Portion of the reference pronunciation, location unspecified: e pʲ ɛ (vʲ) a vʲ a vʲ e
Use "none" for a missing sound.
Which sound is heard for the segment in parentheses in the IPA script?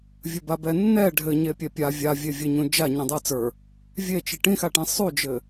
pʲ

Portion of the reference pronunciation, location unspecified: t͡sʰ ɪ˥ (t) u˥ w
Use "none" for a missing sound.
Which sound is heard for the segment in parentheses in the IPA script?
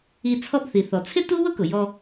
t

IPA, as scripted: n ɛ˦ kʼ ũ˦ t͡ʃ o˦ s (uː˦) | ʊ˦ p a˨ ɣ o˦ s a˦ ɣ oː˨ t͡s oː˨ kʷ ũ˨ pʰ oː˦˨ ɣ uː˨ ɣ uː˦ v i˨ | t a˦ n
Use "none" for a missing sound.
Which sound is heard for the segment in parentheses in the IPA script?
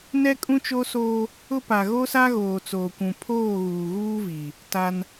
oː˦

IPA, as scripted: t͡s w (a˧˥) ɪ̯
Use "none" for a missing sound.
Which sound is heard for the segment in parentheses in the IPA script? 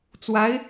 a˧˥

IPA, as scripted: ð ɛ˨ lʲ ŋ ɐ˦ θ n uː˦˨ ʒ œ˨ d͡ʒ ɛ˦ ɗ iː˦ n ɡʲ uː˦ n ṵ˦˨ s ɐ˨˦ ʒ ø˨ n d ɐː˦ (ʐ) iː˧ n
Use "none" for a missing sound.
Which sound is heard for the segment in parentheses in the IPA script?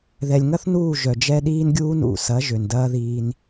ð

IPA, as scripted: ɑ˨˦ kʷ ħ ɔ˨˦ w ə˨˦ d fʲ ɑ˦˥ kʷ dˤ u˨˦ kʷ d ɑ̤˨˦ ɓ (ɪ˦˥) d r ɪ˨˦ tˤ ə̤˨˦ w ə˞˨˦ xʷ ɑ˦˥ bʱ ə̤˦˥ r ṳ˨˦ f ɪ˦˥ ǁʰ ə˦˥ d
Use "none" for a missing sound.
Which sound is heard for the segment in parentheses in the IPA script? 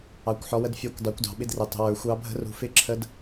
ɪ˦˥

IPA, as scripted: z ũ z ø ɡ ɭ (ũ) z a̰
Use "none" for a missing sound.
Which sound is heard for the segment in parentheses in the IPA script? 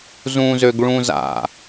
ũ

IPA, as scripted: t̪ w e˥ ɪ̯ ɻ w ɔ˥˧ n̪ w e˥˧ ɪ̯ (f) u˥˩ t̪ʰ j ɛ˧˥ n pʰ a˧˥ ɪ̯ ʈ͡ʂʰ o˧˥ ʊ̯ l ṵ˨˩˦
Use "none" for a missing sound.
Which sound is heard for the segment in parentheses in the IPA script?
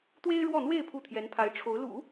pʰ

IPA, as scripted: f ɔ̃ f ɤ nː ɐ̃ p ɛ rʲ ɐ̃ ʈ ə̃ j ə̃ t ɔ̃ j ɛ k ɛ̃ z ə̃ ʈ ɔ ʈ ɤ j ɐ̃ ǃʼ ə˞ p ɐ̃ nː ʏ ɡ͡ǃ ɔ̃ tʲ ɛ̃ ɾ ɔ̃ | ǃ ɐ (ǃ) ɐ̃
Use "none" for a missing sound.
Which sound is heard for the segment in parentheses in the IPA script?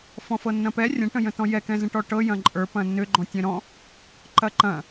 ǃ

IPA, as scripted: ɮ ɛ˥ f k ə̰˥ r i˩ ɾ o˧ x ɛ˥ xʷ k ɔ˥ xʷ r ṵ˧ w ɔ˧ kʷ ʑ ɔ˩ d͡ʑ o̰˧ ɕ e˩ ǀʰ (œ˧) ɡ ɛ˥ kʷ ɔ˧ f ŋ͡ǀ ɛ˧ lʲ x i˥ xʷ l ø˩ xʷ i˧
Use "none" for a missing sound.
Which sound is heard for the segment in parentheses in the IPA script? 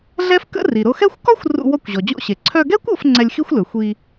œ˧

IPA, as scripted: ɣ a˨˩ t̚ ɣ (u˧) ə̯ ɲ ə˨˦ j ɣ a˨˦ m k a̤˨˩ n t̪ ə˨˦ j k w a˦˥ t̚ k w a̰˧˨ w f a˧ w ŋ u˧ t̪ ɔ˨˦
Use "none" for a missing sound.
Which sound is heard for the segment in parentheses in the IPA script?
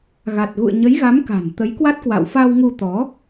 ṵ˧˨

